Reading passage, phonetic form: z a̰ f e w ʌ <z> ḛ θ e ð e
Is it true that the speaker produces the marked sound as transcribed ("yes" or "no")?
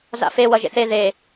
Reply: no